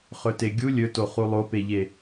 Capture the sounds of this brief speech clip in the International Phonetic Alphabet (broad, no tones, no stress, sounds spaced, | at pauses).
χ ɵ t e ɡʲ u lʲ ɵ t o χ u lˠ o p e ʎ e